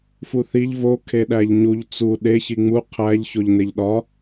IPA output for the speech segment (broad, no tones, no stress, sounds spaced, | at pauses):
f u θ i ʎ v o kʰ e ɗ æ ʎ ɲ u ʎ t͡s u ɗ e ç i ŋ͡m u qʰ æ ʎ ç o ʎ n e ʎ ɗ ɒ